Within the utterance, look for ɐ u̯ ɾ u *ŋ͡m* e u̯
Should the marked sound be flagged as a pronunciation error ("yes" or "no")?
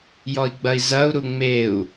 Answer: no